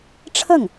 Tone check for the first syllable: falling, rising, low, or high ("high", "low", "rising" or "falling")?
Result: falling